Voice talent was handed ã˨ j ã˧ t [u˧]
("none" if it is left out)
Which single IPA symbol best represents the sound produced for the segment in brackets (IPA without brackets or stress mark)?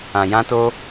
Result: o˧